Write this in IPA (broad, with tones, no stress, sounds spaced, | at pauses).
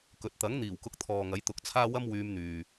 k ɵ˨ t̚ t̪ ɐ˨˥ ŋ n̪ iː˨˩ w k ʊ˨˥ k̚ t̪ʰ ɔː˨ ŋ ɐ˨˥ j t̪ ʊ˨˥ k̚ t͡sʰ aː˥ w ɐ˥ m w yː˧ m n̪ yː˨